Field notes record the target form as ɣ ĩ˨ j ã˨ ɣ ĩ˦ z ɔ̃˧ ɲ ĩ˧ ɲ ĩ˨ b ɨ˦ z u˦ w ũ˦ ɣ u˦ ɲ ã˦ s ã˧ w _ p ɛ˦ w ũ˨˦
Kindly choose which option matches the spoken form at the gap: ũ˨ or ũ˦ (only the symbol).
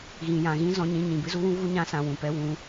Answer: ũ˨